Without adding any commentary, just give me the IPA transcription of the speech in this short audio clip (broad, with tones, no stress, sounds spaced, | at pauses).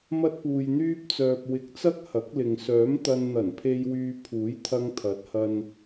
m ɐ˥ t̚ p uː˧ j n̪ yː˥ p̚ t͡s œː˧ p̚ w ɪ˧ k̚ t͡s ɐ˥ k̚ h ɐ˨˥ k̚ l ɪ˨ ŋ s œː˨˥ m t̪ ɐ˧ n n̪ ɐ˨˩ n pʰ e˧ j w yː˧ pʰ uː˨˥ j t̪ʰ ɐ˧ ŋ t̪ʰ ɐ˨˥ t̚ h ɐ˧ n